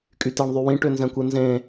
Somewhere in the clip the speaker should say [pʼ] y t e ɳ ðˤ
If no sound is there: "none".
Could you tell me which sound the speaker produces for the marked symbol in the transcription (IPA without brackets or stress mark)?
kʼ